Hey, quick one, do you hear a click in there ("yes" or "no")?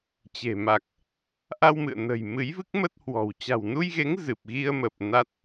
no